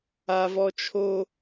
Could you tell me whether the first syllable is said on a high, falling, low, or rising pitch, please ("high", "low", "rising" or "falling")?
low